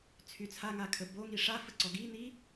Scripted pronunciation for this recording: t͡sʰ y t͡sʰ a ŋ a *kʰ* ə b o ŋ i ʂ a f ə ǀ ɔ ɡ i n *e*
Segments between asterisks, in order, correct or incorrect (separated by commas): correct, incorrect